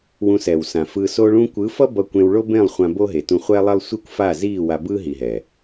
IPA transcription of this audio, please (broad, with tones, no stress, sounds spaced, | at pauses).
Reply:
w ũ˧ s ɛ˨ w s ã˨ f ɯ˧ s o˧ ɭ ũ˧ kʷ ɯ˨˦ f ʌ˦ b ʌ˧ kʷ ẽ˧ w ɭ o˦ b ẽ˦˨ lˠ χʷ ã˧ b o˦ ɦ e˨ t ũ˧ χʷ ɛ˦ lˠ ɛ˦ lˠ sʷ i˦ kʷ f a˦˨ z i˦˨ w a˧ b ɯ˦ ɦ i˨ ɦ ɛ˨